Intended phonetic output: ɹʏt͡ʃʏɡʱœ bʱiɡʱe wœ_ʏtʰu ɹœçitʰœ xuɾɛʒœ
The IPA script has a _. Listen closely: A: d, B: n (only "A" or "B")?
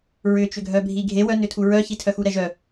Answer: B